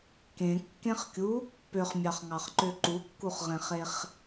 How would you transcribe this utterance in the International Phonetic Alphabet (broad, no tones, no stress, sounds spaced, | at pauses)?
k ẽ kː ẽ χ kʲ u | p ø χ mʲ ɑ χ ŋ ɑ χ ǃ ø ǃ u kː u χ ʁ ẽ χ e χ